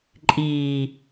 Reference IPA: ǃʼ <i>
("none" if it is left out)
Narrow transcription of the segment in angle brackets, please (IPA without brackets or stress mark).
iː